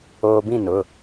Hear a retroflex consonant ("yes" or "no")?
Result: no